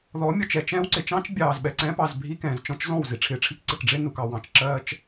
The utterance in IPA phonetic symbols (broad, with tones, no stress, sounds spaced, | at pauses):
ð ɔ˨˦ mʲ ɔ˨ t͡ʃ ɛ˨ t͡ʃ ɛ̃ː˦ w ǀ ɪ˨ t͡ʃ ɑ̃˦ t͡ʃ bʲ ɑː˨ z ɓ ɛ˨ ǀ ɛ̃ː˦ p ɑ˦˨ z bʱ i˦ k ɛ̃ː˨ z t͡ʃ ɔ̃˦ t͡ʃ z ɔ̃˦˨ w z i˨ ʈ͡ʂʰ ɪː˨ ʈ͡ʂʰ i˦ k ǀ ɪ˨ k ɖ͡ʐ ɪ˦ n u˨ k ɑ˨ w ɑ̃˨ t͡ʃ ǁ ɜː˦ t͡ʃ